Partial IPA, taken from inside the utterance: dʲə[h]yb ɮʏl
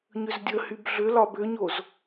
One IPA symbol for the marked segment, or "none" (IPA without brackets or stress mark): h